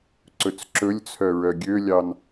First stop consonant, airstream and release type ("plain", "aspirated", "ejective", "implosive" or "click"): click